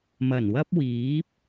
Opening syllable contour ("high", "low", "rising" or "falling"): low